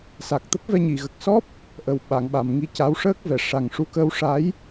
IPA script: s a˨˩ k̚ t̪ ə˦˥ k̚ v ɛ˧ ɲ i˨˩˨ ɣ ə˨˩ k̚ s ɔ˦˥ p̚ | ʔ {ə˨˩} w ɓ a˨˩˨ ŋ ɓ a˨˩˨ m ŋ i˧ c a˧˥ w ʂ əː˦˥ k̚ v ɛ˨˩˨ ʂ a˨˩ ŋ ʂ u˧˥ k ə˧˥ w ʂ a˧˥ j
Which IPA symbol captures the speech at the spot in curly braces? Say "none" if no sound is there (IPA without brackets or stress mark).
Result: ə˨˩